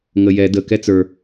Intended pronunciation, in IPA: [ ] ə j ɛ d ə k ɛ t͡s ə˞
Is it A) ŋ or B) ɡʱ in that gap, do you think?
A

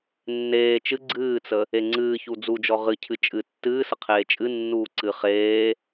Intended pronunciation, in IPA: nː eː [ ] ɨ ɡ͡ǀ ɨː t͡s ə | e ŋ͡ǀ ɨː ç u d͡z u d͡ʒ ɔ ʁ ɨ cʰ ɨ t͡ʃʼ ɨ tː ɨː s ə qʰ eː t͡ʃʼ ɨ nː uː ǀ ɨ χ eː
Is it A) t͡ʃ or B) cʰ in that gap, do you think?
A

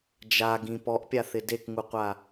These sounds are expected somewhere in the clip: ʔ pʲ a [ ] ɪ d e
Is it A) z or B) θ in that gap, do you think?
B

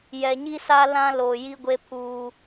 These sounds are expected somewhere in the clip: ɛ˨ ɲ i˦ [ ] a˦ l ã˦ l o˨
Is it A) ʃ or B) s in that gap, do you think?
B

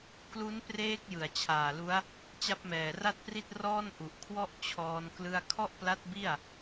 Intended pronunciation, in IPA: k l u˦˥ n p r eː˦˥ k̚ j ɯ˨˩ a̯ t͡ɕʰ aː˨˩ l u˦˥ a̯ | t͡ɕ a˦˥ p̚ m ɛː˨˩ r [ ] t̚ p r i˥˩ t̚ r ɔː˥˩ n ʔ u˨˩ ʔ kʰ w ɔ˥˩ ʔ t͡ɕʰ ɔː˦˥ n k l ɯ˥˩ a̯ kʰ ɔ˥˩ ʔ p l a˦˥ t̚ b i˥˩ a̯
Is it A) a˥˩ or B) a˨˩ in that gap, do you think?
A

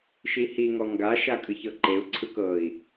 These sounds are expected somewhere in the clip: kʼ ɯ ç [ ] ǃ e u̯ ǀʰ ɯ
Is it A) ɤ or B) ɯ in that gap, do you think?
A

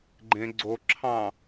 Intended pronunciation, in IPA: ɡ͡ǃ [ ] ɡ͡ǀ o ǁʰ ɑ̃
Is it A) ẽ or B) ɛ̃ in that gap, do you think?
A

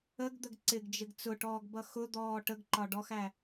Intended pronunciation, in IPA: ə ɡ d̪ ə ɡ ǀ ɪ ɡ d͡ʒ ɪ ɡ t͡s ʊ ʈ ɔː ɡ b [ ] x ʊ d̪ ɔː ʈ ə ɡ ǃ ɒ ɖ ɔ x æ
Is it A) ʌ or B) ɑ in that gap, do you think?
A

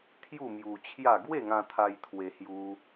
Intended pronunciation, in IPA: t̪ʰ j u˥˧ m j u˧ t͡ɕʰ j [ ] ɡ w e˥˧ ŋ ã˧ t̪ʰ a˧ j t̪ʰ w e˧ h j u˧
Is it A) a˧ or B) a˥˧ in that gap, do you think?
B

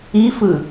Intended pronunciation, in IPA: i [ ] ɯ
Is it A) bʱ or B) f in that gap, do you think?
B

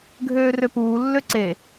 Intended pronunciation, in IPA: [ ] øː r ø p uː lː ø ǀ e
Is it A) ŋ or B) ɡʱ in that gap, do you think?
B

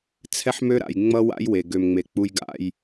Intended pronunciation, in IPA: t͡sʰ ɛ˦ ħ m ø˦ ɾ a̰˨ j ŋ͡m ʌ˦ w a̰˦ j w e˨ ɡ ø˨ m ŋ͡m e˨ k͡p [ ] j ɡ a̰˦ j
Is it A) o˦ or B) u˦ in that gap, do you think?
B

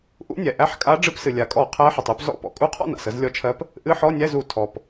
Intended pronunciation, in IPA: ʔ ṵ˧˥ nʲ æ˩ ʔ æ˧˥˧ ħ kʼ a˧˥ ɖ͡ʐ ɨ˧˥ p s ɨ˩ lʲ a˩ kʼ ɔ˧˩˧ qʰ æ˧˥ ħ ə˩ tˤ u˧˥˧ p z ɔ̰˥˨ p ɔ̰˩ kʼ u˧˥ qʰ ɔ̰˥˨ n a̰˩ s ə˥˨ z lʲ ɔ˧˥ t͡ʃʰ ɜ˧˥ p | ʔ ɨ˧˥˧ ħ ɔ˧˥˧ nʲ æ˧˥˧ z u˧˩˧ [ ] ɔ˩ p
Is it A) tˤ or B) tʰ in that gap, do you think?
B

